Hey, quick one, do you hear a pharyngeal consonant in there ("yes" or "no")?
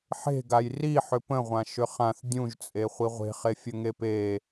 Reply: yes